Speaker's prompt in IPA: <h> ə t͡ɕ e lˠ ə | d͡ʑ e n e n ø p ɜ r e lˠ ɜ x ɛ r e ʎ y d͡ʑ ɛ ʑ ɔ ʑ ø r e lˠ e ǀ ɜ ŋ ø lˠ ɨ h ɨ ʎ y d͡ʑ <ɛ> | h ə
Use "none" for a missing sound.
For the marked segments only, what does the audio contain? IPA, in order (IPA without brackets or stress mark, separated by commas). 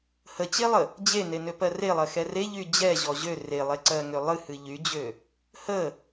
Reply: h, ø